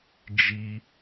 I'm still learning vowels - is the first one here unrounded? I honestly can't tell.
yes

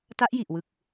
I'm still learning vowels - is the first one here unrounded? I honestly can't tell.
yes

